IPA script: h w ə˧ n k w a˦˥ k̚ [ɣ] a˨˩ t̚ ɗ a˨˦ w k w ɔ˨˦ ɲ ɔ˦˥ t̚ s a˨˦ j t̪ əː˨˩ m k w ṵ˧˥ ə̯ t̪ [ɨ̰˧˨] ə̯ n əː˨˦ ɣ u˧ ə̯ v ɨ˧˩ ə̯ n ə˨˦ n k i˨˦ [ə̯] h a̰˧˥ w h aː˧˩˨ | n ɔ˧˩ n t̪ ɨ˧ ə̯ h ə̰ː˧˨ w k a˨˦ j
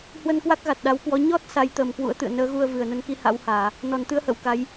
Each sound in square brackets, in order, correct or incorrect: correct, correct, incorrect: none

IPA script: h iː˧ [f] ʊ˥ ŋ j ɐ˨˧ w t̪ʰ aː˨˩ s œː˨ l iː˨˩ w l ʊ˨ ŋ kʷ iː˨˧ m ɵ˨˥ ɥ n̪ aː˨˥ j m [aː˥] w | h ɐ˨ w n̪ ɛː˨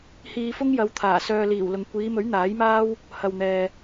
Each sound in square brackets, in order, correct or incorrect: correct, correct

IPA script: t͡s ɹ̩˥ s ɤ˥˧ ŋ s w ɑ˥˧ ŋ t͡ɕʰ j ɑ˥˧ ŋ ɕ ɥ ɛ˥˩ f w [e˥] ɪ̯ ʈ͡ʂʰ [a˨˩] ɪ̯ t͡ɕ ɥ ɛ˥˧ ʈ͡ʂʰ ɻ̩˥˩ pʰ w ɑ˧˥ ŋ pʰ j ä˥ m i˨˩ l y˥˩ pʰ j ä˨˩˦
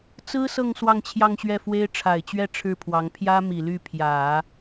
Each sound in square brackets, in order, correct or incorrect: correct, correct

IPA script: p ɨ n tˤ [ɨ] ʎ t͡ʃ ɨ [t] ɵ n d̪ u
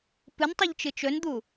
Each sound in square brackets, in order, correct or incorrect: incorrect: i, incorrect: t͡ʃ

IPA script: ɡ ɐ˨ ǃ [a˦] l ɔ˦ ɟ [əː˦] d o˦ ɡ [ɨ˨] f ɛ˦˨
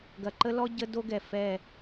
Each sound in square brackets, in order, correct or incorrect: incorrect: ə˦, incorrect: ə˦, incorrect: ɛ˨

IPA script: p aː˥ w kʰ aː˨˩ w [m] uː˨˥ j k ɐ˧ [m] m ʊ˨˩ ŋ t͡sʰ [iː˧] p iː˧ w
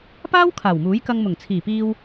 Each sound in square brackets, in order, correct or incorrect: correct, incorrect: ŋ, incorrect: iː˨˩

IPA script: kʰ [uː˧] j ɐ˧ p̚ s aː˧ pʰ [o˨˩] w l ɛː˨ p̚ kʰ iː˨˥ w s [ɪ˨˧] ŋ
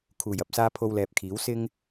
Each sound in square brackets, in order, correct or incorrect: incorrect: uː˨˩, incorrect: o˧, incorrect: ɪ˧

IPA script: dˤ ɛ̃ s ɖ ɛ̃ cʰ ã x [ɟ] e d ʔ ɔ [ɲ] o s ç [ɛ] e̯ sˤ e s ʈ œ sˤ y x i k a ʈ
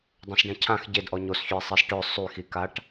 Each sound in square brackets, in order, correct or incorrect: correct, correct, incorrect: ø

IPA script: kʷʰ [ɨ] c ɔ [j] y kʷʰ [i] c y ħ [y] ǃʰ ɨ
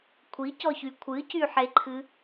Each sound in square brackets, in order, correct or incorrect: incorrect: i, incorrect: ç, incorrect: ɨ, incorrect: e

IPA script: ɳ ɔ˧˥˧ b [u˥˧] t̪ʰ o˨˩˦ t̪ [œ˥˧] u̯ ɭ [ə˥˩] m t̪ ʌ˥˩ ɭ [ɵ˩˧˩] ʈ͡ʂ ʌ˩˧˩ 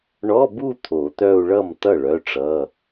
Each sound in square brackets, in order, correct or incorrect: correct, correct, incorrect: ʌ˥˩, incorrect: œ˩˧˩

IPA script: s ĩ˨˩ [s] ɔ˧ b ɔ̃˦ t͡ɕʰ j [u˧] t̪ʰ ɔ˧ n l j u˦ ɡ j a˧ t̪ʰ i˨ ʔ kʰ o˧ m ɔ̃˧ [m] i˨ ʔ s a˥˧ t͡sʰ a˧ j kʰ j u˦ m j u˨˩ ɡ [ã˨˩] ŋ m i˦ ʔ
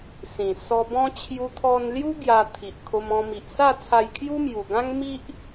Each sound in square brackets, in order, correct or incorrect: correct, correct, correct, incorrect: ã˦

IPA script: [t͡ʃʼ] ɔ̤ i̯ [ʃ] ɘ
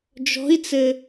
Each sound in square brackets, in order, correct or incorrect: incorrect: d͡ʒ, incorrect: t͡s

